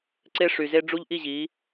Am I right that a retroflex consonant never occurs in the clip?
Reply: no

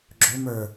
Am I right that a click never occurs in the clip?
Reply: no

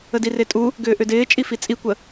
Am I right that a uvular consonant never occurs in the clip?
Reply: yes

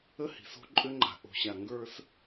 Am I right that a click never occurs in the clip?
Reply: no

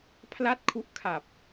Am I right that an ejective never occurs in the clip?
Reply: yes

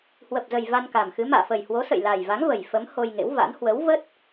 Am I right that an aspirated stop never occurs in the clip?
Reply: yes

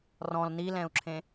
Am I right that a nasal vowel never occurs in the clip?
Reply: no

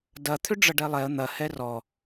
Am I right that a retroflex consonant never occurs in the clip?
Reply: no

